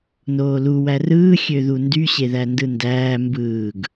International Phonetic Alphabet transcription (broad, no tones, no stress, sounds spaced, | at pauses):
n oː l u w æ r ɯː xʲ ø ð u n d y ɕ e ð æ n d ɯ n d æː m b ɯː ɡ